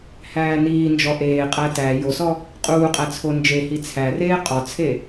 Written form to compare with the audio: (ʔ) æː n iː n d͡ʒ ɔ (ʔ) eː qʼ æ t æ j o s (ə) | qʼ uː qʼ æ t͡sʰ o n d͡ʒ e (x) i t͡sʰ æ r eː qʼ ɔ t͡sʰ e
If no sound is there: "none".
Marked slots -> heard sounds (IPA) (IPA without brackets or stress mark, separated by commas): h, ʔ, ɔ, h